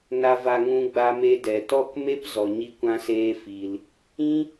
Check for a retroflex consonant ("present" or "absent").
absent